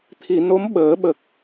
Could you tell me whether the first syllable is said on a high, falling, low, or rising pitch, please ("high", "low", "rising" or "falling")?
low